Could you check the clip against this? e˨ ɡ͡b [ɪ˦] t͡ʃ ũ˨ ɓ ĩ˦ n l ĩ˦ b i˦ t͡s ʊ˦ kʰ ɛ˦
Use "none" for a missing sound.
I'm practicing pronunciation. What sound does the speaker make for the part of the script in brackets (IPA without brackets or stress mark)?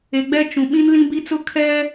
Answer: ɛ˦